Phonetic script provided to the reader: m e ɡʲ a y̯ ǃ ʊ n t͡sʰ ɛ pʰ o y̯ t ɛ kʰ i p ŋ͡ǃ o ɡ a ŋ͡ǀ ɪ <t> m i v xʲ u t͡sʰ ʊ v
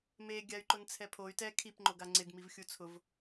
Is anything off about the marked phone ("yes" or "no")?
yes